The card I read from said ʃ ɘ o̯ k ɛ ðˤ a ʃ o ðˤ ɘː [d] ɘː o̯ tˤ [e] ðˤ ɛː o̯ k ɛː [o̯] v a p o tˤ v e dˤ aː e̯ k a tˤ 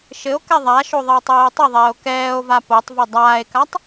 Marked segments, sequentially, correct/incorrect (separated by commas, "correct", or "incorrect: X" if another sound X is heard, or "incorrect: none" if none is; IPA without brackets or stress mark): incorrect: tˤ, incorrect: ɘ, correct